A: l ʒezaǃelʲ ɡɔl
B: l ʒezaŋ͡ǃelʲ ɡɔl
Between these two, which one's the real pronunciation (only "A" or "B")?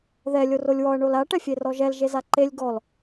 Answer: A